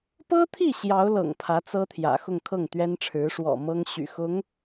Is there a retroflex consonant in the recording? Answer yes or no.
yes